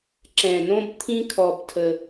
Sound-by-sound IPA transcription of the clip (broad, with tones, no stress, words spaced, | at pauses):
ǁɛ̃˨˩ nõ˦b t̪ʰĩ˦ kʰɔ˨˩btʰə˨˩